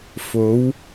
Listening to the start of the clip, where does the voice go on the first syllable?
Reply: rising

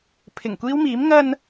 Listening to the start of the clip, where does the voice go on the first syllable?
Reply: low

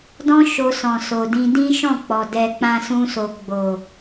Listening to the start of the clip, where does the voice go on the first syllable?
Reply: high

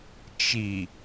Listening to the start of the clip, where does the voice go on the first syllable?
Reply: low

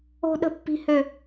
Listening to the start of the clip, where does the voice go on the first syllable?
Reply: high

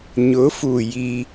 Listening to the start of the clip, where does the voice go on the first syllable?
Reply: rising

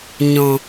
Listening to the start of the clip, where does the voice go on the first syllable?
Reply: low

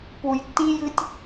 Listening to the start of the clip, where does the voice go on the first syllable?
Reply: low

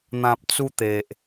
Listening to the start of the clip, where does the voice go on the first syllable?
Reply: low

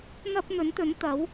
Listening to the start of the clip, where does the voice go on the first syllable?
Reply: high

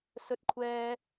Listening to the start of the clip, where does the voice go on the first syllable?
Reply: low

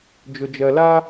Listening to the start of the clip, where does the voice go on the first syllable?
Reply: low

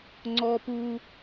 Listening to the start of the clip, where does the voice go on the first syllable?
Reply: high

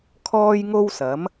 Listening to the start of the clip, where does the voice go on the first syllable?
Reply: high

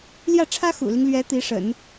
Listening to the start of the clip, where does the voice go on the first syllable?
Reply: falling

